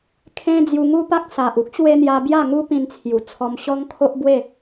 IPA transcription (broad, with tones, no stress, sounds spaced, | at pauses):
kʰ ẽ˦ d͡z j u˧ ŋ u˦ p a˦ k̚ s a˨ ʔ u˦ k̚ ɕ w e˧ n̪ j a˧ b j a˥˧ ŋ u˦ p ĩ˧ n t͡sʰ j u˨˩ t͡sʰ ɔ˧ m ɕ ɔ˦ ŋ kʰ o˦ ʔ b w e˥˧